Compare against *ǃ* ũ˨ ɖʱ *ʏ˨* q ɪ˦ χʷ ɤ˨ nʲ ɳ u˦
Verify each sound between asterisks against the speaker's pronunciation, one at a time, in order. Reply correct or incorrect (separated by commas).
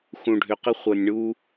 incorrect, correct